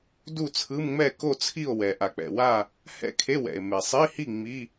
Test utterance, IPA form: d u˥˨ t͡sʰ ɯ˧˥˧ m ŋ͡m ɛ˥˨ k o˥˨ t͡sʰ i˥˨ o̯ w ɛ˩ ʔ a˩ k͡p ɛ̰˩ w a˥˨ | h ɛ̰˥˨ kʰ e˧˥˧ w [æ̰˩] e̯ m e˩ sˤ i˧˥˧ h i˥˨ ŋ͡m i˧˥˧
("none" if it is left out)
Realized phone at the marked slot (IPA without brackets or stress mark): ɛ̰˩